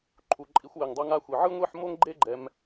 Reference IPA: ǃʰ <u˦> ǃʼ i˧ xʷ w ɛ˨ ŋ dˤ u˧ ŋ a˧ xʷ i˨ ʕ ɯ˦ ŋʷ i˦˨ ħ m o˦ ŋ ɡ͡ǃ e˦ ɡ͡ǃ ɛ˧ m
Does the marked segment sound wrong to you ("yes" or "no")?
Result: yes